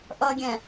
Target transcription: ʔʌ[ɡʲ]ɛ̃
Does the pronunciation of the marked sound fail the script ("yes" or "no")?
no